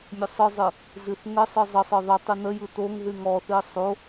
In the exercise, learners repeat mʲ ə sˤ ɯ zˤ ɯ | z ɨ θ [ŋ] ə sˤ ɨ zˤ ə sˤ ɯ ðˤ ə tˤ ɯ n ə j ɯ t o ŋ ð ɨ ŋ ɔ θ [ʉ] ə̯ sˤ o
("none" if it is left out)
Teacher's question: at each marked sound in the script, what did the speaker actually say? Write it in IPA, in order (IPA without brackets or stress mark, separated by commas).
ŋ, ɨ